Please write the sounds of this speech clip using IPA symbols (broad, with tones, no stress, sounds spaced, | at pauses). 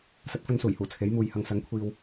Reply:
s ɐ˨˥ t̚ f ɵ˧ n s uː˨˩ j h uː˨˩ t͡sʰ e˨˥ j m uː˨ j h ɐ˧ ŋ s ɐ˨˥ ŋ kʷʰ iː˨ w